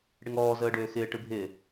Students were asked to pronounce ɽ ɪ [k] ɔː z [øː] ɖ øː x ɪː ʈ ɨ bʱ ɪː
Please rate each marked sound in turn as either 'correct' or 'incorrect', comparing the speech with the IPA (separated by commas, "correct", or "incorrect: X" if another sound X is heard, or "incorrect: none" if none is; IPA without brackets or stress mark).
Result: incorrect: ŋ, incorrect: əː